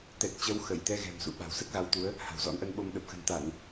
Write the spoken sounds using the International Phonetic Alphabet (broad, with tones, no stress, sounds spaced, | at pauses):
t̪ ɛ˨˩ t̚ t͡ɕ ə˨˦ w x ə˧˩ j t̪ ɛ˧ ɣ ɛ̤˨˩ m s ṵ˧˨ ɓ a̤˨˩ w s ə˦˥ t̚ ɣ a˨˦ w t̪ u˨˦ ə̯ | h a̤˨˩ w z ɔ̰˧˥ n ʔ ə˧ n ɓ o˧ m ɗ ə˨˩ p̚ x ə̤˨˩ n t̪ a˧˩˨ n